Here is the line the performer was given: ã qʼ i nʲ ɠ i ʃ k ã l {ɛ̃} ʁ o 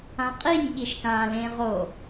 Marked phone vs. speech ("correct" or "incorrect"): incorrect